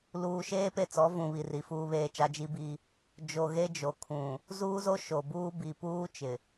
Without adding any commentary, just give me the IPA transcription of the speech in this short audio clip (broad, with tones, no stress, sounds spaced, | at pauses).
l uː˨ ʃ eː˦ p e˦˨ t͡s ɔ˨˦ v ũ˨ β i˨ r i˨ f uː˦ β eː˦ t͡ʃ a˦ d͡ʒ i˦ b i˦ | d͡ʒ o˨ ɣ e˦ d͡ʒ o˨ kʰ ũ˨ | z uː˦ z o˦ ʃ o˨ b uː˦ b i˨ p uː˦ t͡ʃ ɪ˨